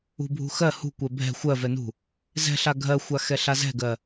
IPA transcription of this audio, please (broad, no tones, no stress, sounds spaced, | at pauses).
ṳ bʱ ṳ x ɜ h ṳ kʷ ɛ bʱ ɛ̤ xʷ ɜ v ɛ n ṳ | z ɛ̤ ɬ a ɡʱ ɜ xʷ a x ɛ ɬ a z ɛ̤ ɡ ɜ